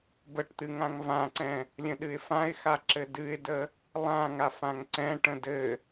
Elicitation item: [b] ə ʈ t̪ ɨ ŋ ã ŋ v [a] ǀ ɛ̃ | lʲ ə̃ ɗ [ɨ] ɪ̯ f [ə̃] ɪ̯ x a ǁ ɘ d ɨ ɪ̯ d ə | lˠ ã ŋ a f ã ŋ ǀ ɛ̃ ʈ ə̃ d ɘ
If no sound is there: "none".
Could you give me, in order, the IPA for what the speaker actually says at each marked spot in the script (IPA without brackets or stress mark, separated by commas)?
b, ã, ɨ, ã